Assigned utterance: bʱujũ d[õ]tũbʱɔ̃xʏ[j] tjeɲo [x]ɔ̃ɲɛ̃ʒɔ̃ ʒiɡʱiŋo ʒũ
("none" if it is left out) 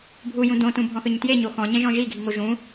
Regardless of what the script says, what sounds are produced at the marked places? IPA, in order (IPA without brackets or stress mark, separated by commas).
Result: õ, ɲ, x